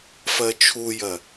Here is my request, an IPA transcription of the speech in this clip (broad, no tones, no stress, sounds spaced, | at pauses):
f ɜ t͡ʃʰ u j ɜ